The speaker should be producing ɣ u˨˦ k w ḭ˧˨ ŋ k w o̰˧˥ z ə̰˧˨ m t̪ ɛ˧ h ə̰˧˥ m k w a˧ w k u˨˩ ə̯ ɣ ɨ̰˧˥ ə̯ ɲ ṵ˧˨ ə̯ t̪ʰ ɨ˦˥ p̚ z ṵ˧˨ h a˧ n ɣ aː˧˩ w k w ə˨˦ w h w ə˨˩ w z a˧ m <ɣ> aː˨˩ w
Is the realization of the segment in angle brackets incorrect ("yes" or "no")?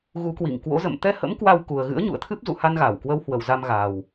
no